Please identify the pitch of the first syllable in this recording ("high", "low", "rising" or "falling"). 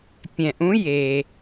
low